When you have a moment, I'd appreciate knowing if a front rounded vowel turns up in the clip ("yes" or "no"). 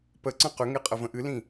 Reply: yes